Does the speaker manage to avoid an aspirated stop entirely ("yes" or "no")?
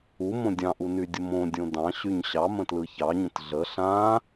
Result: yes